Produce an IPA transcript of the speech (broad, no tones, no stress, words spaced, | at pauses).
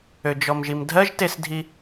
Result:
ød͡ʒɔmʒimdʱɜʒ tesdʱi